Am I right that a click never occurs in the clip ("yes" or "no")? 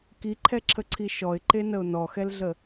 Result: no